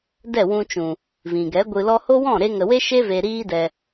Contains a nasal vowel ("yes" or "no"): yes